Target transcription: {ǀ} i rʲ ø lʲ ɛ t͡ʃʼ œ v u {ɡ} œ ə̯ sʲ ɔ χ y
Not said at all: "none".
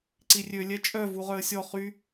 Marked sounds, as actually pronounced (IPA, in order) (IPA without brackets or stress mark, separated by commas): ǀ, ʁ